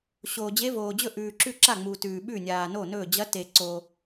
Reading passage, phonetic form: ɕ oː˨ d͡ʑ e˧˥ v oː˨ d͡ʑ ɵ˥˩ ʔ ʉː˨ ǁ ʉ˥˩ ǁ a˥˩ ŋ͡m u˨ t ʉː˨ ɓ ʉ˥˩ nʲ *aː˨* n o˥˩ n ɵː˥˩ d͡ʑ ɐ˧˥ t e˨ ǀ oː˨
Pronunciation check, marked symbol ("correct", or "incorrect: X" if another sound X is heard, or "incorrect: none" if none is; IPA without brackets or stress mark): correct